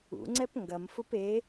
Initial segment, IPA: ṵ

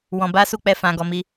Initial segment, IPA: w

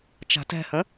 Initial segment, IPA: t͡ʃ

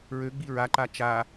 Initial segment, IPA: ɹ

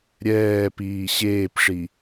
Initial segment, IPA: ɾʲ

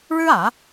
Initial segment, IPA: ɻ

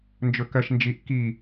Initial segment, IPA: n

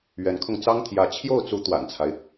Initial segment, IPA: ɥ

